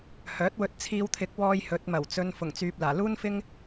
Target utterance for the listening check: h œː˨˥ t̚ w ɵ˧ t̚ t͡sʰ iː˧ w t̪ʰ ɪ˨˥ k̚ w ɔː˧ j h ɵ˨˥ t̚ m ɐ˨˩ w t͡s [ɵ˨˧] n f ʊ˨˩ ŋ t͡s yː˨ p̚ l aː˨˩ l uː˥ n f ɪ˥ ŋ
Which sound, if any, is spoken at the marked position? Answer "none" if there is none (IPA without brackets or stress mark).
ɵ˧